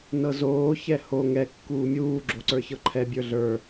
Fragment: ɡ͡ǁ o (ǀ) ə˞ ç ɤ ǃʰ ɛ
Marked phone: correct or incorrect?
correct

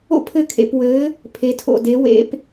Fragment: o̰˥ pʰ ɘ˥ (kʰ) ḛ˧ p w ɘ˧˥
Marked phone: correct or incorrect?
correct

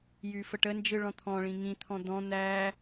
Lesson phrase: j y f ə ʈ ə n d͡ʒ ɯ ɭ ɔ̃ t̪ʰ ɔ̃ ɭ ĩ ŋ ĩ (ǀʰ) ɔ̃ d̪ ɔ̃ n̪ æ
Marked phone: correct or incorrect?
incorrect: t̪ʰ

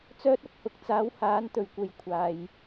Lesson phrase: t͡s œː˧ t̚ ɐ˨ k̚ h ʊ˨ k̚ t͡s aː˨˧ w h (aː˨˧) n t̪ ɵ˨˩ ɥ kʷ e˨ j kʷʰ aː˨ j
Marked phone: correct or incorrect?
correct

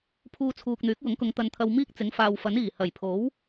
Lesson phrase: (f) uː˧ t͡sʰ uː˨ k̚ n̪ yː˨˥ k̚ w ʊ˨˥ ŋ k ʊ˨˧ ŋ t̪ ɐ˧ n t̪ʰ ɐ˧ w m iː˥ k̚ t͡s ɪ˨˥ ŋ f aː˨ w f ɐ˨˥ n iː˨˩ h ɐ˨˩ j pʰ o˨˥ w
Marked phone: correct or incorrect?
incorrect: pʰ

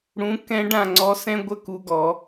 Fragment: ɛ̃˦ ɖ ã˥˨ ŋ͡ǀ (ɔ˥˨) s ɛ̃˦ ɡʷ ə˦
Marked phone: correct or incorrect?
incorrect: ɔ˨˦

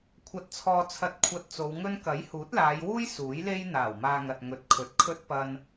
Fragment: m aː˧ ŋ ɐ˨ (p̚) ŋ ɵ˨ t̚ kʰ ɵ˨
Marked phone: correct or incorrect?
incorrect: t̚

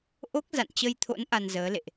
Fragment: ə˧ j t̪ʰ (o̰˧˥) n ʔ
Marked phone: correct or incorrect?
correct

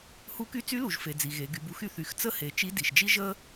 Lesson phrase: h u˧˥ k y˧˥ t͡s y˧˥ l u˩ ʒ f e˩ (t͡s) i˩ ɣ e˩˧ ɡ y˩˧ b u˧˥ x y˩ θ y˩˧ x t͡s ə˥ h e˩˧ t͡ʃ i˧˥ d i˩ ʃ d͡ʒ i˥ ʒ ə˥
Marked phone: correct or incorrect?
incorrect: d͡z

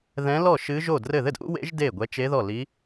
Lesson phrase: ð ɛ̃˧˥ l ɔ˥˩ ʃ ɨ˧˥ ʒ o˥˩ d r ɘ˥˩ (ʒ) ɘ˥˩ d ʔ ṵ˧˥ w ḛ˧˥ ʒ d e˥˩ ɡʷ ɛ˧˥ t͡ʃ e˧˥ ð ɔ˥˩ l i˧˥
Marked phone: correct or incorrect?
incorrect: ð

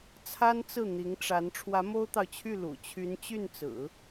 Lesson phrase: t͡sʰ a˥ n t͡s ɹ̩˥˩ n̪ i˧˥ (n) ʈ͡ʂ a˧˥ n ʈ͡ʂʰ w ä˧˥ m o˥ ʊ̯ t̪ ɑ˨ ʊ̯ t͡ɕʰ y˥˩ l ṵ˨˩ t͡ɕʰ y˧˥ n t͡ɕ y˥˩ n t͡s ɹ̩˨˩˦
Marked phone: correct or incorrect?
incorrect: ŋ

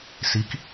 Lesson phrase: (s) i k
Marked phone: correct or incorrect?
correct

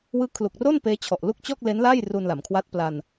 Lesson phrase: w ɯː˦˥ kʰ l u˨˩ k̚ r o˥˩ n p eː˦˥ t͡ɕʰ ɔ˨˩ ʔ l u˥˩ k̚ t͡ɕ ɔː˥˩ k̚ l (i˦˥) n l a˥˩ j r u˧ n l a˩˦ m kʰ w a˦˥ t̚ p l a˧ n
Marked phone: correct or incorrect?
incorrect: e˦˥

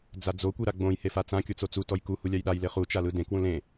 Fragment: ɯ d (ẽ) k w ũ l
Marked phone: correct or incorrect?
correct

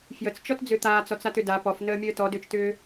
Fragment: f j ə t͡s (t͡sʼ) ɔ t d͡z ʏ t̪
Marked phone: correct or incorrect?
incorrect: t͡ʃ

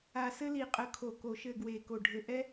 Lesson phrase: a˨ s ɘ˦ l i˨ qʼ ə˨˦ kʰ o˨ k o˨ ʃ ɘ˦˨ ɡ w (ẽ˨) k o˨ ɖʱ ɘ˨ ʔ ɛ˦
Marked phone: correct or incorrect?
incorrect: e˨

